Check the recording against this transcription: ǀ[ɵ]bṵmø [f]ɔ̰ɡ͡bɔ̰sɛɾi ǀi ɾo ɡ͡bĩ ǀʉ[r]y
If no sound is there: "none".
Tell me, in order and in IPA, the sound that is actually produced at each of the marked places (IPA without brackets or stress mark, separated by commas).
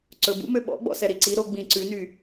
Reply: ɵ, ɓ, n